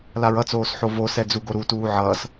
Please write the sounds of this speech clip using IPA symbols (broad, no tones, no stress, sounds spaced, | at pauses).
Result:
l a ɹ ʌ t͡s oː s ħ o v o s ɛ d͡z u ɡ o ɾ u t uː ʕ ʌː s